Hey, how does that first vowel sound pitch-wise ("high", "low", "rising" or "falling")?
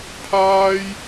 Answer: high